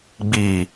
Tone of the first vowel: low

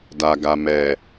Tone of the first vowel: low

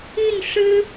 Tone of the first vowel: falling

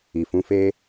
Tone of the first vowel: low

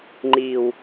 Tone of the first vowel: low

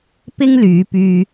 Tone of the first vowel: high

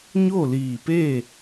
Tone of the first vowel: falling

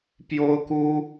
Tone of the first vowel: high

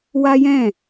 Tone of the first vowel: high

